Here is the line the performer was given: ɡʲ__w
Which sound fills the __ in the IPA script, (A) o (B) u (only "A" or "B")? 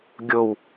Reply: A